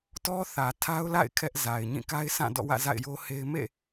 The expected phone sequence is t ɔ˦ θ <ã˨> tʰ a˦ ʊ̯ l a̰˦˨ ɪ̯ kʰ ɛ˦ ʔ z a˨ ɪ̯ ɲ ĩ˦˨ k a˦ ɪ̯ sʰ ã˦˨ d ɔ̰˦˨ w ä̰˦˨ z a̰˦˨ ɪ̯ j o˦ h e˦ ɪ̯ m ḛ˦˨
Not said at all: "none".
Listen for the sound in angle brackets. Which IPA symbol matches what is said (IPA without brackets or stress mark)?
ä˨